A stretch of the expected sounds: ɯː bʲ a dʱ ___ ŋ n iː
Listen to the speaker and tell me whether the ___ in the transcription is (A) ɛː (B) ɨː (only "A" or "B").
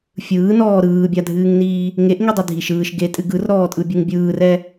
B